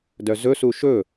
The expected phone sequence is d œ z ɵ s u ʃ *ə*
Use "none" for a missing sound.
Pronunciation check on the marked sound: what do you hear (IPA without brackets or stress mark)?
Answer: ɵ